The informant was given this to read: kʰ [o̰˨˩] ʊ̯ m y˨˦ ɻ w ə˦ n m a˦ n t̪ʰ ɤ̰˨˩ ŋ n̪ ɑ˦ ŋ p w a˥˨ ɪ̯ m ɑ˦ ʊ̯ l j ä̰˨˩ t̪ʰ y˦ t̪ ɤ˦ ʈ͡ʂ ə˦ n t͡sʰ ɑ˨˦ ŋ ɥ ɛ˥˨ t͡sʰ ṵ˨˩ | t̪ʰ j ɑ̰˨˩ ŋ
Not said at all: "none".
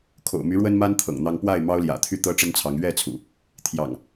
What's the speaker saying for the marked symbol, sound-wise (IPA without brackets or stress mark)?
o̰˨˩